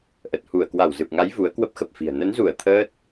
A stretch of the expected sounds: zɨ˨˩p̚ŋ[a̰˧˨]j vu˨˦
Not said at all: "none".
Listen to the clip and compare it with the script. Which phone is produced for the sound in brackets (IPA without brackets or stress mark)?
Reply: a˨˦